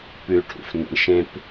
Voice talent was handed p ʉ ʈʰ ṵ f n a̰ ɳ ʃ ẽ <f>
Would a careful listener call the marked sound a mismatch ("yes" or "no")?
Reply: yes